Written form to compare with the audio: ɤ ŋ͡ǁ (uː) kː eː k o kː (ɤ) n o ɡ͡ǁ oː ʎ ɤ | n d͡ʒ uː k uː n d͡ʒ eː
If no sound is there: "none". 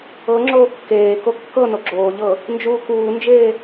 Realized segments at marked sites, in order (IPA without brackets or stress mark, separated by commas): oː, ɤ